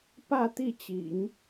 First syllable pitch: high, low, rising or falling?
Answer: falling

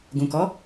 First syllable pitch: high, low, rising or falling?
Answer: low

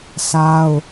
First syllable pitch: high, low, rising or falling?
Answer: high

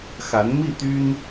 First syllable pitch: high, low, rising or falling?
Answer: rising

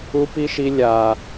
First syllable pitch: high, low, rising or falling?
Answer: high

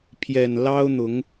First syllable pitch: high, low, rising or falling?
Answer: low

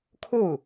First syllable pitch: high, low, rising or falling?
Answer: falling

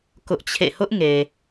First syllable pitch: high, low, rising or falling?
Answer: high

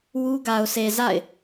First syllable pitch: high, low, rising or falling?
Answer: high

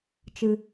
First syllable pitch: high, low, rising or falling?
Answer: low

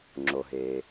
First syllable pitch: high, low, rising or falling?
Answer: low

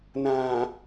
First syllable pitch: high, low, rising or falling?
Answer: low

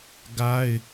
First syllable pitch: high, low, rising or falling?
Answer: high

